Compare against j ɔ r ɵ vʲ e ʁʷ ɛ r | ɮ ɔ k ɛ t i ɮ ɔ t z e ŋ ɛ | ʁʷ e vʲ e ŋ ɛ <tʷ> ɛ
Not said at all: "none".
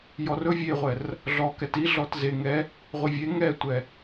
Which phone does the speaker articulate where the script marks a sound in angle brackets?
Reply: tʷ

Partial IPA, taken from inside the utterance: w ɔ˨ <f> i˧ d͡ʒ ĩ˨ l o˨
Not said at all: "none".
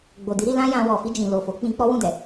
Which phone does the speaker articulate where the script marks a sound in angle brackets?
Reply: f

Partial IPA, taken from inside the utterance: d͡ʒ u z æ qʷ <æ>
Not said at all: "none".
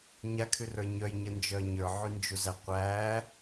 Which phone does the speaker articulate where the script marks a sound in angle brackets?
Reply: æ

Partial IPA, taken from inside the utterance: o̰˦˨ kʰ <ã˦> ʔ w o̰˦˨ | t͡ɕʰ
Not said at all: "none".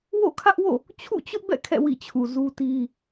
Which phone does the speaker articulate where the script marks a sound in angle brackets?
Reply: ä˦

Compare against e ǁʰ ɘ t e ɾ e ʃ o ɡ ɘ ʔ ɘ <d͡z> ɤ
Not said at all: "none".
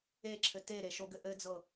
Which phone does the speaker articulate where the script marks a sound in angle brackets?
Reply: d͡z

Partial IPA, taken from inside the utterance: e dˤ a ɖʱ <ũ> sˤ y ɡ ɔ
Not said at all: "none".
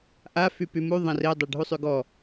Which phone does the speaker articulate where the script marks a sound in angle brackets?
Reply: u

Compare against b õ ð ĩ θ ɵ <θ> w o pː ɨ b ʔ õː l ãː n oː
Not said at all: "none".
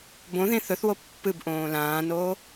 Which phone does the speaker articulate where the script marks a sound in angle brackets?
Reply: θ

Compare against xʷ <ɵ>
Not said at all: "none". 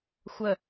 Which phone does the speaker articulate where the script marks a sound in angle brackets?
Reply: ə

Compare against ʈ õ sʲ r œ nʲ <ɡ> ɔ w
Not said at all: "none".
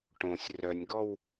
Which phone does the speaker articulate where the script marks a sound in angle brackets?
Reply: ɡ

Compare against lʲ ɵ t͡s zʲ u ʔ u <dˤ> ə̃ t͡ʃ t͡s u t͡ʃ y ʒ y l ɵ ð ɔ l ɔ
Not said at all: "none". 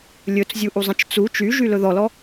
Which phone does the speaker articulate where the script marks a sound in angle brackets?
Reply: zˤ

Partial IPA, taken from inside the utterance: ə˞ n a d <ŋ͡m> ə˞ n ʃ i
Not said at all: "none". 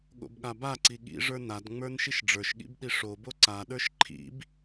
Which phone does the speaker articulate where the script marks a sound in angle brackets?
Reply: ŋ͡m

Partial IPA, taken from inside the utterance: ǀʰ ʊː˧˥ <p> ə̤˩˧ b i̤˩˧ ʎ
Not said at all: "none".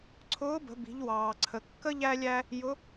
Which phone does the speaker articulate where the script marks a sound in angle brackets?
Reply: b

